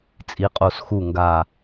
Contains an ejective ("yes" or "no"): yes